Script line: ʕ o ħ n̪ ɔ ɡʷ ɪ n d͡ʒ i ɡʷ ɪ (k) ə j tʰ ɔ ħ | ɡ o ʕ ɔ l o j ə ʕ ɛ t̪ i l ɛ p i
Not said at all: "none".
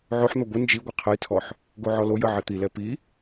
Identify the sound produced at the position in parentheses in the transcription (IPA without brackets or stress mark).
qʰ